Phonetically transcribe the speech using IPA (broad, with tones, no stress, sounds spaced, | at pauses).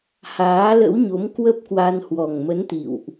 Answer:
h aː˨˦ l ə̰˧˥ w ɲ o˨˦ m k w ə˦˥ p̚ k w a˧ n h w ɔ˨˩ ŋ m ə˨˦ n t̪ ḭ˧˨ w ʔ